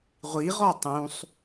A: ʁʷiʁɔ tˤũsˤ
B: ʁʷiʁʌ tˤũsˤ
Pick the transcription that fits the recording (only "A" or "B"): A